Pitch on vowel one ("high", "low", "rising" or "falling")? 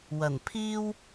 low